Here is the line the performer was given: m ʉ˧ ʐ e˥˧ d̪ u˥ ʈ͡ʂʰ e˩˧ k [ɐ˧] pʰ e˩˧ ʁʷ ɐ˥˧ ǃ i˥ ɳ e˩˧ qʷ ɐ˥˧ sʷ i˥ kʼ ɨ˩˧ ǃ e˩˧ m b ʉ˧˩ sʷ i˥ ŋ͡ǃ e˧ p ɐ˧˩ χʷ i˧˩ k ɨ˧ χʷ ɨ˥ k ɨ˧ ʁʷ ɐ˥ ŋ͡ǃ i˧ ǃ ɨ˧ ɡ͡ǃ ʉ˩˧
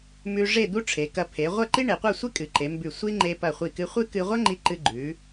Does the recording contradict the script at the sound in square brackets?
no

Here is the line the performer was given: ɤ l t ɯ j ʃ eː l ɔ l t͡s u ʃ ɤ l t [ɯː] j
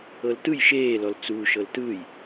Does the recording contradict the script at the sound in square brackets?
no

